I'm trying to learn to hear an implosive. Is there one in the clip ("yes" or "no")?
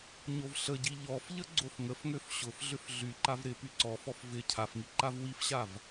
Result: no